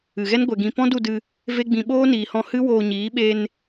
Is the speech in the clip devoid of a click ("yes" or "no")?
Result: yes